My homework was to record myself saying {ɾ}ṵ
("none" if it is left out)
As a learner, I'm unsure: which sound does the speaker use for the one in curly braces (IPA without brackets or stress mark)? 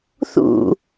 θ